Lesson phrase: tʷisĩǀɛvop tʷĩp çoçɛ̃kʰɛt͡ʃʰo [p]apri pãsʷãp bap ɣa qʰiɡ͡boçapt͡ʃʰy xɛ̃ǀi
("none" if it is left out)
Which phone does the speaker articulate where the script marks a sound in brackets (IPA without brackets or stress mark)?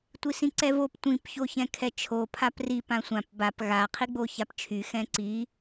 pʰ